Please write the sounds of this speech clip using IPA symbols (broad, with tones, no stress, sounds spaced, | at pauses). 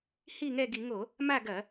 h i˥˨ ŋ ɛ˥˨ ɡ i˧˩˧ ŋ o˧˩˧ | m a˥˨ ɡ ɐ˧˩˧